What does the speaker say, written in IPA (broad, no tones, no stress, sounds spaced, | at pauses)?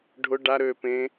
ɖʱ ʊ ɖ a ɾ øː p ẽ